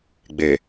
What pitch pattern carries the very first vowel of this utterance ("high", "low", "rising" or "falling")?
low